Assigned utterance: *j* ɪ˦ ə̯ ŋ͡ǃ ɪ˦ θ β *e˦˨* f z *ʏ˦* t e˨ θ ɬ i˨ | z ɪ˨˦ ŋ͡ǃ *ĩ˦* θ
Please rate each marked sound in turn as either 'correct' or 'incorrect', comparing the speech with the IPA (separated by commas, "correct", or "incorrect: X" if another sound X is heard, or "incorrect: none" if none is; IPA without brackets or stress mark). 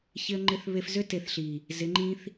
incorrect: ç, incorrect: e˦, correct, correct